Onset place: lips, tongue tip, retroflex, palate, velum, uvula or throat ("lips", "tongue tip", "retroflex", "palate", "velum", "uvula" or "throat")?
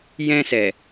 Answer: palate